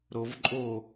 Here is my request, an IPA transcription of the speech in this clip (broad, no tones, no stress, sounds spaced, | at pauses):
ɾ o v ǃʼ o